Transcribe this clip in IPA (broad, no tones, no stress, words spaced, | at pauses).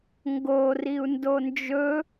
ŋɡo riu̯ndond͡ʒɵ